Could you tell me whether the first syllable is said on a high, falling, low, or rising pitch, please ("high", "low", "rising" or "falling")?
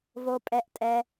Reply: low